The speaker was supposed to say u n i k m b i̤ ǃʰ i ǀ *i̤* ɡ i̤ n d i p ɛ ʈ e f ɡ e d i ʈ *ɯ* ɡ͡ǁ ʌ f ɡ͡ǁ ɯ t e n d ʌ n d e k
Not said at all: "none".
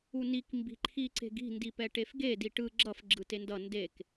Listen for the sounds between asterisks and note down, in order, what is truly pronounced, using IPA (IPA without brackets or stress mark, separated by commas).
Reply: e̤, ɯ